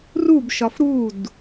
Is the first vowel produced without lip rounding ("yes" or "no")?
no